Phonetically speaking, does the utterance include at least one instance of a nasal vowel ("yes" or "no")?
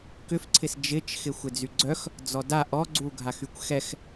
no